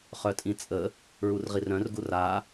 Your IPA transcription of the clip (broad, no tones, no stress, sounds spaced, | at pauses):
χ œ tʼ ĩ t͡sʼ ə | ɹ u r ʁ i r œ̃ r ɡ u r a